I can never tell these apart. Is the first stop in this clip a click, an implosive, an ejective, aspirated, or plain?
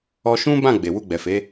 plain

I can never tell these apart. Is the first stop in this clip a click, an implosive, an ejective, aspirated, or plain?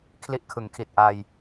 aspirated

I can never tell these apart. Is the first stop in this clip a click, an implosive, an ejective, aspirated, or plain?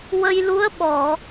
implosive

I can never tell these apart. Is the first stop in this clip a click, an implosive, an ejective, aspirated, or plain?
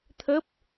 aspirated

